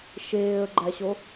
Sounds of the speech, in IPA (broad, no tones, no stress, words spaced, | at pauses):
ʃeːə̯ɡ͡ǃæɕo